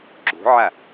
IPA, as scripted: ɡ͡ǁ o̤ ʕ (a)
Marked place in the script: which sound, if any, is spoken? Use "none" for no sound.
a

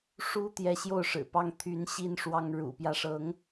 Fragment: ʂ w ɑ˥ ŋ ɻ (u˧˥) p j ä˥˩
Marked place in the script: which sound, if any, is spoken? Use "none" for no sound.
ṵ˨˩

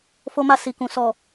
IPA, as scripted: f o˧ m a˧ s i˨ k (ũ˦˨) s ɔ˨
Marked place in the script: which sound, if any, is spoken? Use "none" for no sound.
ũ˨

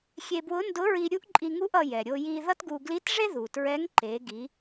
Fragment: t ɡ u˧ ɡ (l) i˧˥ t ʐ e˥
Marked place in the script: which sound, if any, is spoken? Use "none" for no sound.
l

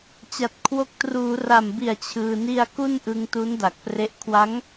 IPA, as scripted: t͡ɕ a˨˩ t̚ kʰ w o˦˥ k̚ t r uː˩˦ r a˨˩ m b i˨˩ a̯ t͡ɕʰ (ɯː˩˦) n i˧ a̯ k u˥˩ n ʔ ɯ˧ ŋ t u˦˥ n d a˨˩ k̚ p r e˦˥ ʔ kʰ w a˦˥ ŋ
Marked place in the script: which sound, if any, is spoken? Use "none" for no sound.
ɯː˧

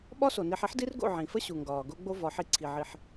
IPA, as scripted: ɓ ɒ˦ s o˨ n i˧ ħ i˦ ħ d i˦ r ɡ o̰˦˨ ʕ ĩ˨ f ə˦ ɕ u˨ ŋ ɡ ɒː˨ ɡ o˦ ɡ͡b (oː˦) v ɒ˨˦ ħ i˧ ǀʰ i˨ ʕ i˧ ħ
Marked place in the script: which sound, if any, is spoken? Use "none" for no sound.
o˦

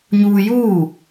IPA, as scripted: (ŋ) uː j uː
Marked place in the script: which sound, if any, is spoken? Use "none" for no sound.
ɲ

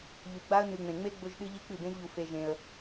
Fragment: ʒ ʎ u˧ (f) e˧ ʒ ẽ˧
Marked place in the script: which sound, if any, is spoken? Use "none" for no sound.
f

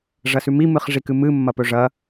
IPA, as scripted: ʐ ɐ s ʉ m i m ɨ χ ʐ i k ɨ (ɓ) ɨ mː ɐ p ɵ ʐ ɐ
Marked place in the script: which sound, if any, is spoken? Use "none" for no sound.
m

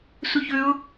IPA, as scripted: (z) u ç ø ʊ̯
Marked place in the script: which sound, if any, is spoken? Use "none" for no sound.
s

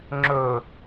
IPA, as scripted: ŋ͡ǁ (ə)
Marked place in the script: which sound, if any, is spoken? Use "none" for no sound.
ɵ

